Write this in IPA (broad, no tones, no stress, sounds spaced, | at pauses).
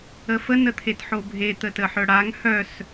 ə f ə n ə t̪ʰ e t ħ o bʱ e t̪ ə t ə ħ œ ɽ a ŋ h œ s